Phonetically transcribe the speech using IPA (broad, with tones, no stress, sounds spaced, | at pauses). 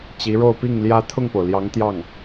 t͡ɕ i˧˥ ɻ o˥˧ ʊ̯ p i˥˩ ŋ l j ä˥ t̪ʰ ʊ˥˩ ŋ p o˩ ʊ̯ l j ɑ˧˥ ŋ t̪ j ɑ˥˩ ŋ